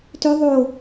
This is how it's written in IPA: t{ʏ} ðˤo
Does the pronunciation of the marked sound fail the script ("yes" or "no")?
no